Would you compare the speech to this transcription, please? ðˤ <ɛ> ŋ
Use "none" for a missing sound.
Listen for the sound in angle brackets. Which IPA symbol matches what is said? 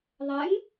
ɛ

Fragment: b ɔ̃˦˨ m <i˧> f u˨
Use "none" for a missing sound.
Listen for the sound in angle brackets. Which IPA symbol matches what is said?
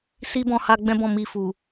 i˧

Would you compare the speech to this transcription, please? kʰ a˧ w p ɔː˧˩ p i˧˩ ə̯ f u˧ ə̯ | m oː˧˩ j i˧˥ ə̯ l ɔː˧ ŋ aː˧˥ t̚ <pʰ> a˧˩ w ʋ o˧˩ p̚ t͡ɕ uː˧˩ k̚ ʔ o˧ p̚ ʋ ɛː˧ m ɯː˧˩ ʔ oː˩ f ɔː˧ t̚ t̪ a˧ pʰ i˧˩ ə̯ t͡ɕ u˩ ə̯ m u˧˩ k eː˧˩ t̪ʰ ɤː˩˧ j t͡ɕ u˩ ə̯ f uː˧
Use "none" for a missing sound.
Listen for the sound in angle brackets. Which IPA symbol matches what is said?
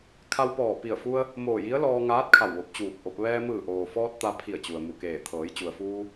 kʰ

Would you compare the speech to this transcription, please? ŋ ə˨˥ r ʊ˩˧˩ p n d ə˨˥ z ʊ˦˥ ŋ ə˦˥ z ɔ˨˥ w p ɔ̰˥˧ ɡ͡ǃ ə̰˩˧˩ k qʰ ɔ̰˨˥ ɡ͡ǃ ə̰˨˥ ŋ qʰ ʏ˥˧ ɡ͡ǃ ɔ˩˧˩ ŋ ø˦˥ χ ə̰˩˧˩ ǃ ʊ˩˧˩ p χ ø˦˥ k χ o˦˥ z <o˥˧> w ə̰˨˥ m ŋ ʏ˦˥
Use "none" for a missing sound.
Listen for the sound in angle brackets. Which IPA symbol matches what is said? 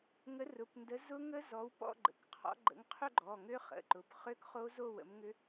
o˥˧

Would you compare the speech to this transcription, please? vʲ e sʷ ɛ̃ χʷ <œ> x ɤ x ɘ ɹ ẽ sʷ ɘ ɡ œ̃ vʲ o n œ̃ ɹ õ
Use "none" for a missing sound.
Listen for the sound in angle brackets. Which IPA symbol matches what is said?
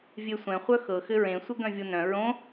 œ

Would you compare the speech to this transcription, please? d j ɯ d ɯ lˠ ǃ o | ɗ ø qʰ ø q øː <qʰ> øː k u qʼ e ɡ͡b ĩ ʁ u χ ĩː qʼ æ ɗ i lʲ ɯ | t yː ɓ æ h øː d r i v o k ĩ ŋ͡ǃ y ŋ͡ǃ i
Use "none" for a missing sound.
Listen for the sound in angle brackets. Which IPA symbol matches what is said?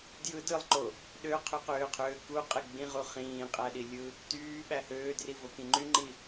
qʰ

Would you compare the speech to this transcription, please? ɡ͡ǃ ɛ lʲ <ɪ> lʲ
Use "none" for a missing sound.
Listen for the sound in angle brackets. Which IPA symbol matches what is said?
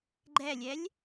ɛ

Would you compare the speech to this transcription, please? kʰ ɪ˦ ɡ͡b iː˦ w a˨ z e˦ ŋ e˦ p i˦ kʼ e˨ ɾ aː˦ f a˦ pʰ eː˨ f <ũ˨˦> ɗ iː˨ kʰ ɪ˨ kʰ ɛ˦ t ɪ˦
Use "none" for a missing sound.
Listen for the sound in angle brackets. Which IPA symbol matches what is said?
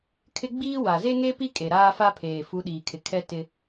u˨˦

